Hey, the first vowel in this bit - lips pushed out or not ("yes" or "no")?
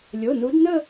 yes